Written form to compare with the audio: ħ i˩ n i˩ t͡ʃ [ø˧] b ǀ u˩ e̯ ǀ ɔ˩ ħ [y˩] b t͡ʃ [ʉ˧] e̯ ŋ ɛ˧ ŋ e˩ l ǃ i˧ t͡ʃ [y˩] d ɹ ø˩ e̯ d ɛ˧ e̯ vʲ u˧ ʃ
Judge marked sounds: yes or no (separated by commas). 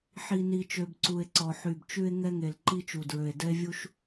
no, yes, yes, no